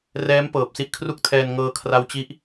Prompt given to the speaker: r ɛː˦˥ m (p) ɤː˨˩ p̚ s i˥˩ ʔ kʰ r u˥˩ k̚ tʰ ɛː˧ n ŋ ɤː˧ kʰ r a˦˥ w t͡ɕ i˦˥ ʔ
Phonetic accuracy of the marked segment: correct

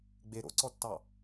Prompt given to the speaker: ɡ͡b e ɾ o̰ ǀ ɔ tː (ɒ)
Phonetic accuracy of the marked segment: incorrect: ɑ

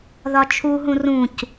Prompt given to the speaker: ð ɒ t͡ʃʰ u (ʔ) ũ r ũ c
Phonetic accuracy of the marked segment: incorrect: ɦ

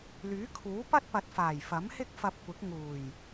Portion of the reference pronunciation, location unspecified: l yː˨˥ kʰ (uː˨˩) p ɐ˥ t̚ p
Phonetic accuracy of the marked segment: incorrect: uː˨˥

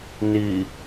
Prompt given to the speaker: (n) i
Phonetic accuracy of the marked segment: correct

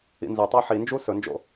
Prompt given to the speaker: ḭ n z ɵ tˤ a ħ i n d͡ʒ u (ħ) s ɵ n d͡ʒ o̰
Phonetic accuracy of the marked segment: incorrect: none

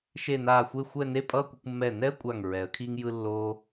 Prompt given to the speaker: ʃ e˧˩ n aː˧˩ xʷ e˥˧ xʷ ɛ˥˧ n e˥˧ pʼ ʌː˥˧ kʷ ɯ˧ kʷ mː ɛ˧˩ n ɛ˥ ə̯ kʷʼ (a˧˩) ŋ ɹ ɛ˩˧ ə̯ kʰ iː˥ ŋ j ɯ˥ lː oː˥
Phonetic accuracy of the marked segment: correct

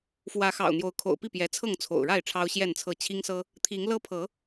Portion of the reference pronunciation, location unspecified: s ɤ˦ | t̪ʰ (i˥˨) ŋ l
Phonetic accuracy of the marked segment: incorrect: i˨˦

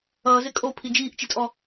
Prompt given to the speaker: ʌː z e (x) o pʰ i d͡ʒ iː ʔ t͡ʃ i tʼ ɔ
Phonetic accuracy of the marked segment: incorrect: kʼ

